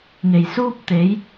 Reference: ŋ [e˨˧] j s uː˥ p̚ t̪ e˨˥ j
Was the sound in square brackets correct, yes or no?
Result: no